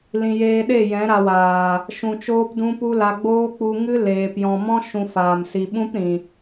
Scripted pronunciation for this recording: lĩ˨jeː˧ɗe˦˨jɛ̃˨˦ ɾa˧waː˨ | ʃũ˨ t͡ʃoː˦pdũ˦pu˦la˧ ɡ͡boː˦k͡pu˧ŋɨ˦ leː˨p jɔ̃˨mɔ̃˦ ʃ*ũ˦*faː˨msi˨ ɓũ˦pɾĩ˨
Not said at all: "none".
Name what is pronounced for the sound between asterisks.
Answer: ũ˧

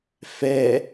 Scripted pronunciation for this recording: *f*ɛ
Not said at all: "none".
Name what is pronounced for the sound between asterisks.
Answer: f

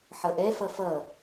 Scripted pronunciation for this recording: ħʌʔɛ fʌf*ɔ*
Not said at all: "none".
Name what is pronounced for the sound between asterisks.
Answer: ʌ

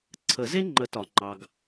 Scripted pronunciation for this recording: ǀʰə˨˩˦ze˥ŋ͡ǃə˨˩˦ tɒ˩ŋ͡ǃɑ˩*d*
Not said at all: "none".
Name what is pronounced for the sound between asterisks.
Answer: ɡ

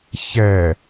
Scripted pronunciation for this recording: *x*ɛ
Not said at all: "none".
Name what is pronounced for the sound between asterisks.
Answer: ç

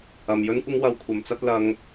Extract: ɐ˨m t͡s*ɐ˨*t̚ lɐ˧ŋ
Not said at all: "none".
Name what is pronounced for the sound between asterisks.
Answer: ɐ˧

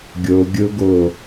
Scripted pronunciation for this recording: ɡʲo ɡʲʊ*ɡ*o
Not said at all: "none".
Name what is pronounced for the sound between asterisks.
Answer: ɡ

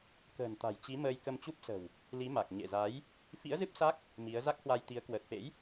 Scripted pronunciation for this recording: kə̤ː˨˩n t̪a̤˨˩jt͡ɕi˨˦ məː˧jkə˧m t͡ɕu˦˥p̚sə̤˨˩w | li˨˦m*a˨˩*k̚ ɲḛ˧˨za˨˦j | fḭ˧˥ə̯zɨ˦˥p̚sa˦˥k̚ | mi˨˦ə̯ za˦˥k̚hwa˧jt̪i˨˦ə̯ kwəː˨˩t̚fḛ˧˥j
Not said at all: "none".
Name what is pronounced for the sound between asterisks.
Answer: a˨˩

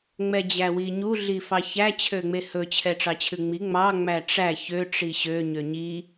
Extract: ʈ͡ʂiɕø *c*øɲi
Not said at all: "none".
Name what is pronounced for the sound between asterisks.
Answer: ɲ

